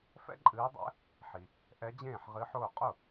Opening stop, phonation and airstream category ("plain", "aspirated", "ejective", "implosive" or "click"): click